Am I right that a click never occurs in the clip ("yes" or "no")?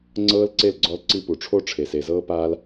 no